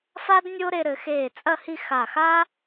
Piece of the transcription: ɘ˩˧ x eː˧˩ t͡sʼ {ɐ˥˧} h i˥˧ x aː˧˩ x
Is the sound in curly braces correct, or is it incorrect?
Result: correct